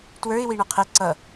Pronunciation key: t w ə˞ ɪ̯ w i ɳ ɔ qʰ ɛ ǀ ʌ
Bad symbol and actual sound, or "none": none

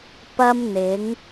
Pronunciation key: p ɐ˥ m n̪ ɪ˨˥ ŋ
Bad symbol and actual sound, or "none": none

